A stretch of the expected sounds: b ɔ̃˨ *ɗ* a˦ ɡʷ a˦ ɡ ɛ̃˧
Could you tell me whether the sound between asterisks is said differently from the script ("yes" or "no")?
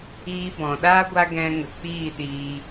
no